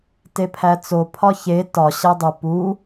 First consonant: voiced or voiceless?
voiceless